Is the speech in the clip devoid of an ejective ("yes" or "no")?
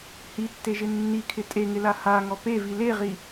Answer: no